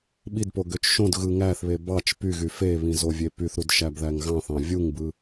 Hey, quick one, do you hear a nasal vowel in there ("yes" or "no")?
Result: yes